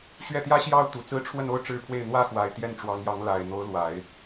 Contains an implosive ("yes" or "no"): no